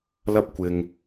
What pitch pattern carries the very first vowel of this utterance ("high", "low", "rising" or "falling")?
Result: high